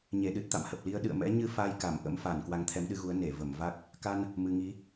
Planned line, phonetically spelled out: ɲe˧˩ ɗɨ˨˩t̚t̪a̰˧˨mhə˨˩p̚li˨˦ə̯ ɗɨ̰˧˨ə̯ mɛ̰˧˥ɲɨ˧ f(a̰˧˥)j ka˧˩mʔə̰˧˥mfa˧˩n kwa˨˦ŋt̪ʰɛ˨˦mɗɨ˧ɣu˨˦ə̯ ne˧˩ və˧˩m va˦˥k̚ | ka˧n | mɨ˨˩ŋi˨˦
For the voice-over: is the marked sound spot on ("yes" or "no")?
no